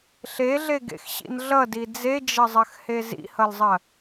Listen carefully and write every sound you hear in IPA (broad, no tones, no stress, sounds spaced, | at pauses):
ɬ e ɮ e ɡ ḛ x ɕ ḭ n ɮ ʌ d i d͡z e d͡ʒ ɐ zˤ ɐ x h e z ḭ h ʌ l zˤ ɐ